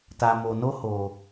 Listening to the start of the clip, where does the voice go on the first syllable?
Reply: low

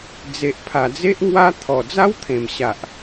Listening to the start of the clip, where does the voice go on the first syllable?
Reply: low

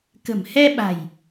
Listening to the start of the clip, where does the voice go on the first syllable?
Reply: low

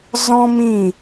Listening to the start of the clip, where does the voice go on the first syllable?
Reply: high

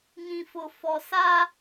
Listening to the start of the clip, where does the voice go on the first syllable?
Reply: low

